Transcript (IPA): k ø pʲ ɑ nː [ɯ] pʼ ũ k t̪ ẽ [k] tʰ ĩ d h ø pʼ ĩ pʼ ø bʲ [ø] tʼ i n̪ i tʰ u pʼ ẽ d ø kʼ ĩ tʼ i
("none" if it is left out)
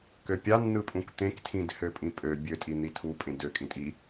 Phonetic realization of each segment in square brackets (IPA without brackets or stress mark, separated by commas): ɯ, k, ø